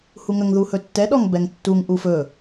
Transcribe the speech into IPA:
h u ŋ ə ŋ ð u h ɵ tː ɛ ɗ ɔ ŋ b ɛ ŋ tː u ŋ ʔ u f ɵ

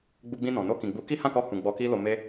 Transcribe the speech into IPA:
ɡ͡b u˧ ɡ͡b ĩ˧ n ɔ̃˨ n o˧ k ĩ˨ ɡ͡b u˨˦ k i˦ h ã˦˨ k ɔ˧ h ũ˨ ɡ͡b ɔ˧ k i˦ l o˧ m e˦

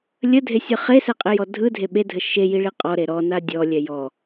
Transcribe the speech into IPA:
lʲ ə dʱ e sʲ ɯ χ e s ɛ qʼ e j ɔ dʱ ɯ dʱ e ɓ e dʱ ə ʃ e j i ɭ i qʼ ɔ ɾ e ɾ ɔ n a dʲ ɔ lʲ ɛ j ɔ

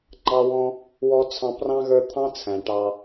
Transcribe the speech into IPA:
ŋ͡ǃ ɑ˥ w ɔ̃˥ | w ɔ˥ t͡sʰ ɑ̃˦ p r ɑ̃˥ ɣ ə˞˦ t̪ʰ ɑ̃˥ t͡sʰ æ̃˩ ʈ ɑ˨

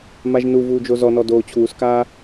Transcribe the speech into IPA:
m a ʒ n u v uː d͡ʒ o z ɔ n ɔ d oː t͡ɕʰ uː s k aː

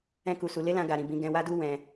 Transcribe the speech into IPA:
ɛ̃˦ k u˧ s u˧ l e˦ l ã˧ ɡ a˧ ɾ ĩ˧ b ĩ˧ ɡ ɛ̃˧ w a˦ d u˦ w ɛ̃˧

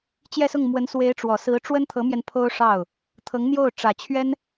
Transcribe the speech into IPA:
t͡ɕ j ɛ˥˧ s ʊ˥˩ ŋ m w ə˧˥ n s w e˧˥ ɪ̯ ʈ͡ʂ w ɔ˨˩ s ɹ̩˧˥ ʈ͡ʂ w ə˥ n t̪ʰ ɤ˧˥ m j ɛ˧ n pʰ o˥ ʊ̯ ʂ ɑ˥˩ ʊ̯ | t̪ʰ ɤ˧˥ ŋ n̪ j o˥˩ ʊ̯ ʈ͡ʂ ä˨˩ t͡ɕʰ ɥ ɛ˥ n

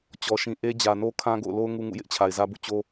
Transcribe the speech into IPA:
t͡ɕ ɔ˨ ʃ ĩ˨ ʔ e˦ d͡ʑ ä˨ n o˦ kʰ ã˦ ɡ o̰˦˨ ʊ̯ l o˦ ʊ̯ ŋ u˦ ŋ ṵ˦˨ j ɪ˦ ʔ t͡ɕʰ a˨ ɪ̯ z ä˦ b ṵ˦˨ t͡ɕ o˦

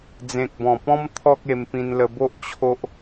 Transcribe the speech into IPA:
d͡z ẽ˨ k̚ b ɔ̃˨˩ p ɔ̃˦ m t̪ʰ ɔ˦ k̚ e˧ m p ĩ˧ n l ə˧ b o˦ ʔ t͡ɕʰ o˦ ʔ

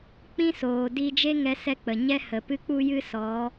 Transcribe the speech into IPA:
k͡p ĩ˦ s oː˨ d i˧ d͡ʒ e˦ ŋ ɛ˧ s ɛ˧ k͡p ə˨ ɲ ɛ˦ h ə˨ p ɨ˦ k͡p u˦ j ɨ˦ s ɔ˨˦

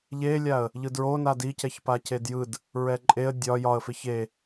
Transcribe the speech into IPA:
ʎ e lʲ a ə̯ | ʎ ɯ d ɹ o n a d i c ɛ ç p a c e d j ɯ d | ɹ ɛ ǃʼ e ə̯ dʲ ɒ j ɒ ə̯ f e ç e

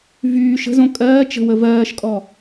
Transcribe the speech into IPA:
v yː ʃ ə̤ z õ kʼ ɜː t͡ʃ ə̤ w ə v ɜː ʃ kʼ ɔ

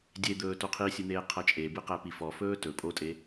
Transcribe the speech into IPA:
dʲ e d̪ ɵː t o qʰ i sʲ ɨ n̪ eː qʰ ʌ t͡ʃʼ e b ɨ q æ p i f ɔ f ɵː t ɵ pʼ o tʼ e

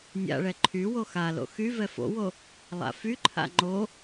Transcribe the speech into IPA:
nʲ a̰ ɭ ɛ ǃʰ y w o x a l o̰ x y v ɛ f o̰ w o | lˠ a̰ f y ǃʰ a̰ ŋ͡ǃ o

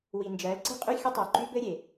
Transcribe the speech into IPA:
w i˨ n d͡ʒ ɜ˨˦ l ǀ i̤˦ qʼ y˦ xʲ ə˦ tˤ ɜ˨ ǃ y˦ b ɘ˦ ɾʲ e˨

